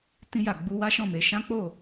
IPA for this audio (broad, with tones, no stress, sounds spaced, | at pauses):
t ĩ˧ j a˨ ɡ͡b u˧ w a˦ ʃ ɔ̃˦˨ m e˨˦ ʃ ã˦ k͡p o˦˨